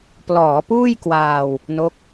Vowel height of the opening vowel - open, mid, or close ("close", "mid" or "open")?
mid